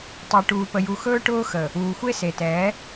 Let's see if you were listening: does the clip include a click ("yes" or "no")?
no